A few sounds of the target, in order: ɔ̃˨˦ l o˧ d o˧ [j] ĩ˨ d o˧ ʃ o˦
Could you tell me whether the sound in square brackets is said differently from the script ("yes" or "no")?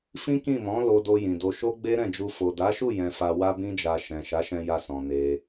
no